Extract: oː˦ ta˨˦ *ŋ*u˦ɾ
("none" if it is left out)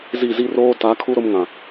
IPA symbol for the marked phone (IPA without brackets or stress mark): kʰ